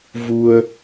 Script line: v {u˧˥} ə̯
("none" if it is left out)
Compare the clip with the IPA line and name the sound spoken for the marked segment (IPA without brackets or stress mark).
u˧